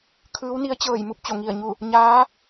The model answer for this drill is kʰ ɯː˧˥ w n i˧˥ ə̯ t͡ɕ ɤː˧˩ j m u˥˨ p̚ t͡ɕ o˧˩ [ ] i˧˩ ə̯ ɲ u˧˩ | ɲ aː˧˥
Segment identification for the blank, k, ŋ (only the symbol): ŋ